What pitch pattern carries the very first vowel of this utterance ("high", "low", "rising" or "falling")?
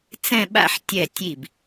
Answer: falling